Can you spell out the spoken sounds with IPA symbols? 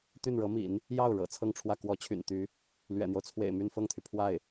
t̪ y˥˩ n ɻ ɤ˧˥ m ḭ˨˩˦ n | j ɑ˥˩ ʊ̯ ɻ ɤ̰˨˩ t͡sʰ ɤ˥˧ ŋ ʈ͡ʂʰ w ä˥˩ k w ɔ˧˥ t͡ɕʰ y̰˨˩ n t̪ y˧˥ | l ɥ ɛ̰˨˩ n̪ j o˦ ʊ̯ t͡sʰ w ḛ˨˩ ɪ̯ m y˥˧ n f ɤ˥˩ ŋ t̪ʰ y˩ pʰ w a˥˩ ɪ̯

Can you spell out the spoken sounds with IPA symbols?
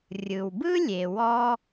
rʲ ɯ˩ w b ɯ˥ lʲ e˩ w ɔ˥

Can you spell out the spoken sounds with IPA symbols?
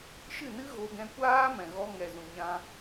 ʃ ɨ˦˨ n ɨ˦ ɣ o˧ ɡ ɛ̃˧ kʷ aː˦ m ɛ̃˨ ɣ ɔ˧ ŋ ɛ˨ z ũ˨ ɲ ã˧

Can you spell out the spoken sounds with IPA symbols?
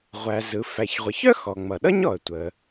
ʁʷ æ˩ z ɯ˩ f æ˩ ç ʁʷ ʌ˩ ç œ˥ x ɔ˩ ŋ͡m ʌ˩ ɗ ʌ˥ ɲ ɔ˩ ə̯ tʷ ə˩

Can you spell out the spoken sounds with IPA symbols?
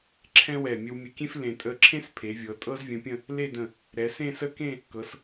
ǁʰ ɛ̃˥ w ɛ˧˩ mʲ ə˧ w mʲ ə˧ kʲ ẽ˥ f l ẽ˧˩ tʼ ə˥˧ ǁʰ ẽ˥ s pʰ e˩˧ vʲ ɤ˩˧ tʼ ɤ˥ z vʲ ə̃˧ pʲ ə̃˥˧ | l e˥˧ d ə̃˧˩ | ɾ ɛ˩˧ s ẽ˥˧ s ə˥˧ k ẽ˥˧ | k ɤ˩˧ s

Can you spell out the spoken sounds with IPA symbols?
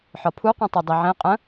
ħ ɒ pʰ u qʷ ĩ tˤ e dˤ i ʕ ẽ qʼ ə̃

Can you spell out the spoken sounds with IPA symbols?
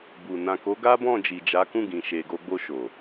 b u˨ n ã˨ k o˨˦ ɡ a˦ b ɔ̃˦˨ d͡ʒ i˨ d͡ʒ a˨˦ k ũ˦˨ ɡ ĩ˨ ʃ e˨ ɡ o˧ ɡ͡b o˧ ʃ o˨

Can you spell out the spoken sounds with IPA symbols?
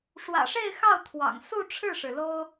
ʂ w ä̰˨˩ ʂ e˥˧ ɪ̯ x ɑ˥˩ ʊ̯ t̪ʰ w ɑ̰˨˩ ŋ s u˥˧ ʈ͡ʂʰ ɻ̩˥˩ ʂ ɻ̩˩ l o˥ ʊ̯

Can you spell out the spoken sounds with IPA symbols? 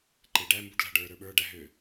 ǃ e ɖ æ m b u ɖ l æ̤ ɖ ə˞ ɾ ə˞ ɓ ə˞ ɖ æ ɦ ø

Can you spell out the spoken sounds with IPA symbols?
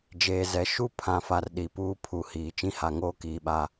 d͡ʒ eː˨ z ɛ˨ ʃ u˦ pʰ ã˨ f a˨ r ɗ i˨ p uː˦ pʰ u˨ h iː˨ t͡ʃ ĩ˦ h a˨ ŋ oː˦ k iː˨ ɓ a˨

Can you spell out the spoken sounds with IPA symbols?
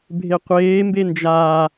bʱ e qʷ eː m b e n d͡ʒ aː

